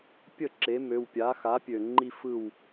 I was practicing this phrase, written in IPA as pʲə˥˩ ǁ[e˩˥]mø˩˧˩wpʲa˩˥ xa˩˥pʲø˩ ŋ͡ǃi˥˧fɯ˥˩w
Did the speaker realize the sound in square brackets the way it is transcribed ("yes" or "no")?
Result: yes